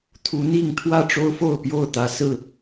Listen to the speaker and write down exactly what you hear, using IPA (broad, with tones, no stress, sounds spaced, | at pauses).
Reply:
t̪ʰ u˨˦ n̪ i˥˨ ŋ t̪ʰ w ä˥˨ ʈ͡ʂ o˦ ʊ̯ f o˥˨ ʊ̯ p j o˥˨ ʊ̯ t̪ ä˨˦ s ɹ̩˥˨